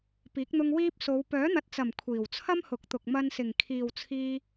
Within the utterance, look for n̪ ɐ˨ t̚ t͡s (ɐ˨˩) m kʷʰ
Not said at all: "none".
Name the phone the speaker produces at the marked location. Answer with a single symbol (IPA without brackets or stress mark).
ɐ˨˩